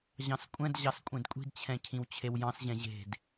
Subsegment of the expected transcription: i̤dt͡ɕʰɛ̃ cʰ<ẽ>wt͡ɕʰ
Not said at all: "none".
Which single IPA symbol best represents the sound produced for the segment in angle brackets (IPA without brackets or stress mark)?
ĩ